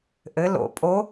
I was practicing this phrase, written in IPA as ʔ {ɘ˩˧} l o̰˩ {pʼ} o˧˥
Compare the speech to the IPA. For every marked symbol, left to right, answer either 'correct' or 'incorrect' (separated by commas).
correct, correct